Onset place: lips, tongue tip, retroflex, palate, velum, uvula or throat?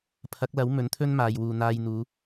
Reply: lips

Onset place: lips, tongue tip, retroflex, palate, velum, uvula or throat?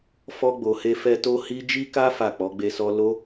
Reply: lips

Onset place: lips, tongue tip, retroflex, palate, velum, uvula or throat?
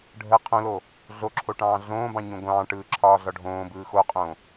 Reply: retroflex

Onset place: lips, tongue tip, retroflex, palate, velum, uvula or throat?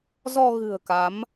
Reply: tongue tip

